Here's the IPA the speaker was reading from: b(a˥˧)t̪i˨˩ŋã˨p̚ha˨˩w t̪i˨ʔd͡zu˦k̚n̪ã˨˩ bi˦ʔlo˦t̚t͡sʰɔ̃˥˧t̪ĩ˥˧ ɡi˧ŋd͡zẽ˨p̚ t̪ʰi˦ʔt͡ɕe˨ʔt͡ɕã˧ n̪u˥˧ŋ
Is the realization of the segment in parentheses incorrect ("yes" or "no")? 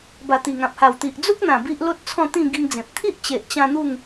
yes